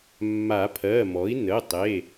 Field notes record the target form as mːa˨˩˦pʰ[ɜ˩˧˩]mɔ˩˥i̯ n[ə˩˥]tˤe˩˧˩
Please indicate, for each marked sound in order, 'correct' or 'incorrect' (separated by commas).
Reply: correct, incorrect